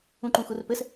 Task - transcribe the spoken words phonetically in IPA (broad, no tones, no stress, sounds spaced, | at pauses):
ũ ǃ ũ x u r p ɘ s